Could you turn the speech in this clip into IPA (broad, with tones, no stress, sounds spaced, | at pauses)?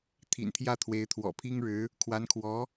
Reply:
t̪ʰ ḭ˨˩ n t̪ʰ j ä˥˩ t̪ʰ w e˧˥ ɪ̯ t̪ʰ w ɔ̰˨˩ pʰ i˥ ŋ ɻ ɻ̩˧˥ | kʰ w a˧˥ n kʰ w ɔ˧˥